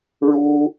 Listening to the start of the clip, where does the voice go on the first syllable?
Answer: high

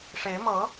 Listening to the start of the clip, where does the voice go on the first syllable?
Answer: rising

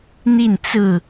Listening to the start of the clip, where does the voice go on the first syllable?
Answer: falling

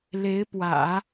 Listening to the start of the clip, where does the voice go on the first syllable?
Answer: rising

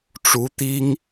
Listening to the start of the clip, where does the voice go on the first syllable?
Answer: rising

